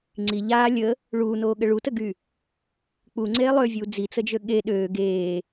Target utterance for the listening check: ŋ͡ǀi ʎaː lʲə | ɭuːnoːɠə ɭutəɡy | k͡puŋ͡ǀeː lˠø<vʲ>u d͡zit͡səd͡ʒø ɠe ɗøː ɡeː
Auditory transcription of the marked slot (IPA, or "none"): vʲ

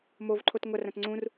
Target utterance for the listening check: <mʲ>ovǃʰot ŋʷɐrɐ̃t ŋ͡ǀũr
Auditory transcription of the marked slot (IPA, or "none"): m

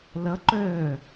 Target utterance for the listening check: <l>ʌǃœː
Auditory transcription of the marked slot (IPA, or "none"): l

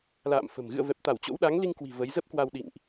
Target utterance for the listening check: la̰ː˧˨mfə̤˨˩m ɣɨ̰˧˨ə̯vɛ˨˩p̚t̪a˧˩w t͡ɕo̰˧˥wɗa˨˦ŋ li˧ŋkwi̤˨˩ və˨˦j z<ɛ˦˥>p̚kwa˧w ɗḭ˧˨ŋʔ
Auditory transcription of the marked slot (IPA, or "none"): ə˦˥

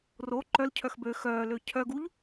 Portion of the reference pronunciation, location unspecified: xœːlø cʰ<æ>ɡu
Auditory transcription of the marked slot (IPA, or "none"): œ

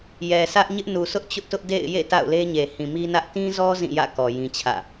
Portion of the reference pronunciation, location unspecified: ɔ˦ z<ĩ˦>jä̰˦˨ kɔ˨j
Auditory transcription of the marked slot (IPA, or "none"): ĩ˦˨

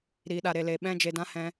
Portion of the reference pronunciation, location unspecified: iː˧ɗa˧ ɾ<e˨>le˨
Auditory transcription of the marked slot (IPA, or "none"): e˨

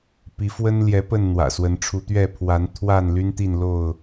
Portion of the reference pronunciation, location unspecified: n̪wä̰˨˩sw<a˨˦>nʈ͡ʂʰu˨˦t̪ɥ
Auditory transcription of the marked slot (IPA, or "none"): ə˨˦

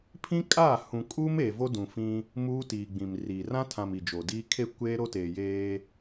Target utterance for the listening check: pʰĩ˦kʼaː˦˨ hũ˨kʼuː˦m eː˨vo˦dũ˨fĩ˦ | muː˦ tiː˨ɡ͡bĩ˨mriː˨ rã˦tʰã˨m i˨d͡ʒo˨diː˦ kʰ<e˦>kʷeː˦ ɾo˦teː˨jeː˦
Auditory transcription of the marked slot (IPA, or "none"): e˦˨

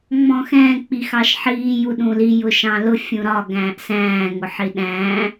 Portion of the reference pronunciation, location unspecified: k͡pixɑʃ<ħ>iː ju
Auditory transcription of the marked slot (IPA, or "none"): ħ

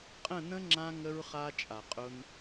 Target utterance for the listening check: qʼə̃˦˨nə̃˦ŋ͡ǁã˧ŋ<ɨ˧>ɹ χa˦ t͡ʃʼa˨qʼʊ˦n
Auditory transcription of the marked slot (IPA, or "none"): ə˧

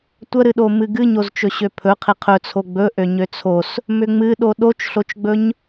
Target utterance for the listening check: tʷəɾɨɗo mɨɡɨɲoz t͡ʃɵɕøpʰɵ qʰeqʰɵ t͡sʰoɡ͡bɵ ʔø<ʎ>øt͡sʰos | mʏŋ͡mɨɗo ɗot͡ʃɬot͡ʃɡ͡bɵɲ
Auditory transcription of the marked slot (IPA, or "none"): ɲ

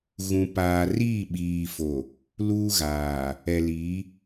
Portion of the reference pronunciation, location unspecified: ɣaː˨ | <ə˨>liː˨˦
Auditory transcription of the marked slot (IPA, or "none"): ɛ˨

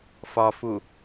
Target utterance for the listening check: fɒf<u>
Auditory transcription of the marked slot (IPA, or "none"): u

